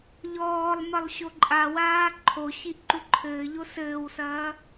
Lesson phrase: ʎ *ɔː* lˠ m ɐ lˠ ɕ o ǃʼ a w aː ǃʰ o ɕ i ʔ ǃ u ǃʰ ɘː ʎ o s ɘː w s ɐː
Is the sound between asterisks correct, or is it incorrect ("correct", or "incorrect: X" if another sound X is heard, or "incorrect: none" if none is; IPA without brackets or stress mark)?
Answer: correct